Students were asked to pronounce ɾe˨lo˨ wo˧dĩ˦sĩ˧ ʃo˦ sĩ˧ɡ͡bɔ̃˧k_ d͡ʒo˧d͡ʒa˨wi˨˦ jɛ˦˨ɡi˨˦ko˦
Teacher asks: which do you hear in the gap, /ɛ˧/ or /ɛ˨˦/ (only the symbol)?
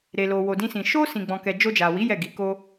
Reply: ɛ˧